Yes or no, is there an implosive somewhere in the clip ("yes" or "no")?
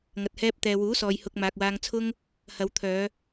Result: no